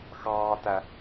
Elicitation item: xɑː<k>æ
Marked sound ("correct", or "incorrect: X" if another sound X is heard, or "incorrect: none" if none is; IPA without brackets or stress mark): incorrect: t